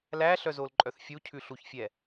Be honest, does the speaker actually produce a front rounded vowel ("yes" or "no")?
yes